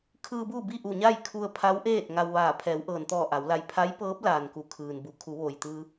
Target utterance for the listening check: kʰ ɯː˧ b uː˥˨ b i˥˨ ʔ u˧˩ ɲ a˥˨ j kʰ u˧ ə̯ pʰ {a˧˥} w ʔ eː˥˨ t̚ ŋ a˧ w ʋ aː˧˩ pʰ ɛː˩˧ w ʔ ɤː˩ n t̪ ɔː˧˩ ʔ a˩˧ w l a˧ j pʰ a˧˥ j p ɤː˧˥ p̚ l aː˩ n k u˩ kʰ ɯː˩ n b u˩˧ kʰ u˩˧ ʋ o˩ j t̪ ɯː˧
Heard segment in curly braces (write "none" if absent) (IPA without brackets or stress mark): a˧˥